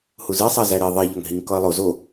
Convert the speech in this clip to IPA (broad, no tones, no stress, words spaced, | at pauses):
huzisˤæ zæɾi ðˤeʎɒŋ ɦiŋkɒə̯lˠo zo